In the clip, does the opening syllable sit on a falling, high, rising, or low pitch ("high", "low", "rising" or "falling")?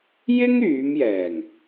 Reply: high